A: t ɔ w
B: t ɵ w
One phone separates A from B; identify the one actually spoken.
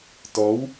A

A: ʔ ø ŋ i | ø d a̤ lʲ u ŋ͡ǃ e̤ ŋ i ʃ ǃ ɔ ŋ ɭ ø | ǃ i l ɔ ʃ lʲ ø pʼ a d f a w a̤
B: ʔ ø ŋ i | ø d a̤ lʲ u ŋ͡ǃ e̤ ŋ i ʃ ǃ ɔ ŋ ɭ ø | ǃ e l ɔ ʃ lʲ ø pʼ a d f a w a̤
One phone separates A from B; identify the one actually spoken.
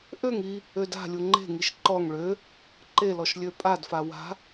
B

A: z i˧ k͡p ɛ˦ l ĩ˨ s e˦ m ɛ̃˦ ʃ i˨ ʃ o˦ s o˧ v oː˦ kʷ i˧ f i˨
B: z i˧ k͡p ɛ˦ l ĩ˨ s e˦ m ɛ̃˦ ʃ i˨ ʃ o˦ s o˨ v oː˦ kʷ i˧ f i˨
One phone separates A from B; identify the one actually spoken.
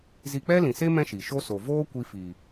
B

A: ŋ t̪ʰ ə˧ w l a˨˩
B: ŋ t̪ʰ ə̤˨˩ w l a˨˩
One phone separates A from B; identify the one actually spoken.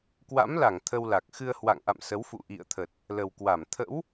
A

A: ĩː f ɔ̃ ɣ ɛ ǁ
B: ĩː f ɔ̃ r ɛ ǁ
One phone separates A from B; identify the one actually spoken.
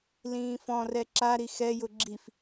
B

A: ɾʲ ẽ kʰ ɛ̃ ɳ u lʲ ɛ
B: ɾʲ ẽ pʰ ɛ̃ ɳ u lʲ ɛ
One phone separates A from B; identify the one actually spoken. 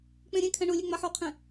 A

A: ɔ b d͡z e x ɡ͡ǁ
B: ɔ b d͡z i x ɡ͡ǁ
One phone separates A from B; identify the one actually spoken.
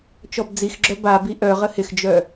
B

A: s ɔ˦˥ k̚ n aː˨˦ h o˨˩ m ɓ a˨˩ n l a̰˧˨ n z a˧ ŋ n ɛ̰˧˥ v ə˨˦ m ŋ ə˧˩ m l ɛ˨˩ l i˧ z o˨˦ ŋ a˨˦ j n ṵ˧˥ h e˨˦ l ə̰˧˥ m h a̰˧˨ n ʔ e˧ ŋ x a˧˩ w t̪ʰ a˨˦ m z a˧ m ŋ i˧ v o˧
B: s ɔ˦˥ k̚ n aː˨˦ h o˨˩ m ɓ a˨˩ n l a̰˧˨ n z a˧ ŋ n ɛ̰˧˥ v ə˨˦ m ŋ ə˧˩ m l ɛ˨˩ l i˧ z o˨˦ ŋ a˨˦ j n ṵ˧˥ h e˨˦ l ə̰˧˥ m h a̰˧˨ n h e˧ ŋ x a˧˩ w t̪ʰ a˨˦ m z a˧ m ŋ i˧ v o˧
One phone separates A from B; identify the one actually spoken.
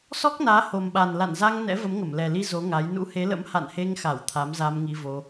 B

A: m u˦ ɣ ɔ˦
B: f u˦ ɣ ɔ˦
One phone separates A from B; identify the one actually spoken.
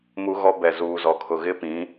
A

